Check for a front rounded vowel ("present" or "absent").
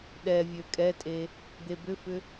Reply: present